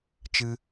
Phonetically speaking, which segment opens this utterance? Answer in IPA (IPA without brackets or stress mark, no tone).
t͡ʃ